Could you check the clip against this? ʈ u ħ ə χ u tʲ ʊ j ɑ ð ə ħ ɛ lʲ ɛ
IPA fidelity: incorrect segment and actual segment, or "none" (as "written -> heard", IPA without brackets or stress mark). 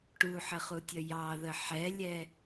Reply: ʊ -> ə